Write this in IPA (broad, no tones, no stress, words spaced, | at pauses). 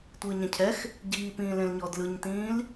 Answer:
tʷɯːɲɛ̃cʰɛx | ɟiːpĩːlẽlɲɔ dlɯɲtĩːl